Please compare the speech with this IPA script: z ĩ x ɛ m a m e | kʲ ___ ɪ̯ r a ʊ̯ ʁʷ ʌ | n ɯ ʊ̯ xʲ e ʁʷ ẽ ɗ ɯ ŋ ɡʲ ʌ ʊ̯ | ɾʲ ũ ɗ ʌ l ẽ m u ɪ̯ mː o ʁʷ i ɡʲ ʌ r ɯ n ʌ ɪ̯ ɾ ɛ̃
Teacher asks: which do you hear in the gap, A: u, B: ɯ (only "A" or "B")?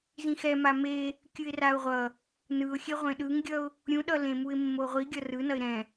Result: B